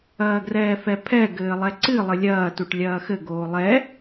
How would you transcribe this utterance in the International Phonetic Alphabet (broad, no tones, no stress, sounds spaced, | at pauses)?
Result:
ɐː ɡ r ɛː f ɛ pʰ ɛ ɡ ɘː lˠ ɛ ǀ ɨ lˠ ɘ lʲ ɐː t u ʈ lʲ ɐː x ɘ ɡ oː lˠ ɛ